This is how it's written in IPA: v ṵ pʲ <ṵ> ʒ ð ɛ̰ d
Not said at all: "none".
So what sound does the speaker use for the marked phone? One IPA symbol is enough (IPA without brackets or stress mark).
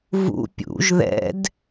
ṵ